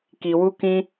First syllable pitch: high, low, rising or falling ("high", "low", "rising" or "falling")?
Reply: low